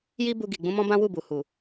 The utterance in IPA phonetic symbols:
j i˦ b u˧ ɡ i˨ ɡ͡b ũ˧ m ɔ̃˧ b ã˦ w u˦˨ b u˨ h u˨

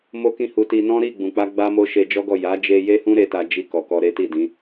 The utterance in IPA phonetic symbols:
m o˦ k ĩ˦˨ h u˧ t i˧ n ɔ̃˦ ɾ i˦˨ ɡ͡b ũ˨ k͡p a˧ ɡ͡b a˦ m o˦ ʃ e˧ d͡ʒ ɔ˦ ɡ ɔ˦˨ j a˨˦ d͡ʒ e˧ j e˦ h ũ˦ ɾ e˧ t a˧ d͡ʒ i˧ k ɔ˨ k ɔ˧ ɾ e˦ t i˦˨ d ĩ˨˦

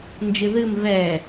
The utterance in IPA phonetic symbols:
n d͡ʒ ɨ ð ɨ m v ɛ

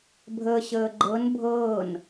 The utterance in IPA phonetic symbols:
bʱ əː ɕ əː ɡ͡ǃ ɤ n bʱ ɤː n

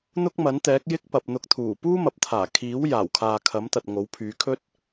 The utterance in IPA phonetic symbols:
n̪ ʊ˥ k̚ m ɐ˨˥ n t̪ ɛː˨˥ k̚ j ɪ˧ k̚ p ɐ˨ p̚ n̪ ʊ˨ k̚ t̪ʰ uː˨˩ p uː˥ m ɐ˨ p̚ t̪ʰ aː˨˩ kʰ iː˨˥ w j aː˨˩ w kʰ aː˨ kʰ ɐ˨˥ m t̪ ɐ˨ t̚ ŋ o˨˥ w pʰ yː˨˧ kʰ ɵ˥ t̚

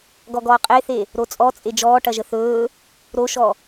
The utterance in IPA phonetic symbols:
ɡ ɔ ɡ ɔː qʼ e θ e | ɾ o t͡sʼ ɔ t͡sʼ e d͡ʒ ɔː ʈ ɐ ʒ ə θ ɵː | ɾ o ʃ ɔ

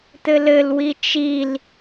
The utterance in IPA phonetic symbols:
t̪ ɘ l ɘ l w i t͡ʃ i l

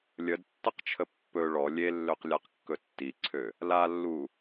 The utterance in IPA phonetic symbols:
lʲ ə d tː ə q t͡ʃʰ ə pː ɵ ɭ ɔ lʲ e lː ø q lʲ a q kː ɵ tː i ǀʰ ø | l a lː u

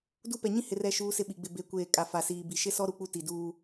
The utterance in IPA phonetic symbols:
d u˦ p ɛ˨ ɲ ĩ˦˨ h ɪ˨ r ɛ˦ ʃ uː˦ s ɪ˦ ɓ i˨ ɡ͡b ɪ˨ b e˨˦ kʷ eː˨ kʼ a˨ f a˨ s iː˨ b i˨ ʃ ɪ˦ s ɔ˦ ɾ u˨ k͡p u˦ t i˨ d uː˦

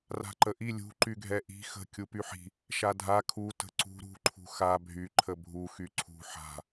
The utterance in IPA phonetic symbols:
r a̤ ǃ ə ʔ i lʲ ṳ ǃ y ɡʱ ɛ ʔ i̤ x ə̤ kʲ u p y ħ i̤ | ʃ a dʱ a kʰ u t ə̤ ǀ ṳ ɾ ṳ ǃʰ ṳ x a bʱ y ǃʰ ə bʱ u x y ǀʰ ṳ ħ a̤

